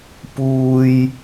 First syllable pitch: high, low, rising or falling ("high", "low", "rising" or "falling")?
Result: high